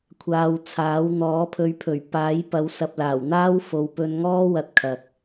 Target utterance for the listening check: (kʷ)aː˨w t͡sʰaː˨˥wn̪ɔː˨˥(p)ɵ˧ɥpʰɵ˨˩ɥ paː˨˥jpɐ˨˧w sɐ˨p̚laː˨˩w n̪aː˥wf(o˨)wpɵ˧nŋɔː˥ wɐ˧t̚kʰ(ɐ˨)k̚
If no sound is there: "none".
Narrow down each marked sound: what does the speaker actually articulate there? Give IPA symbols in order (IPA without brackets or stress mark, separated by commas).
kʷʰ, pʰ, o˨, ɐ˨